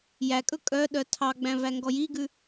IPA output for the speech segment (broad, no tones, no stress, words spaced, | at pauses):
jækʼɵ kʼœ ɗœtʰɑɡ͡bæ̃ væŋɡɔjiɡʉ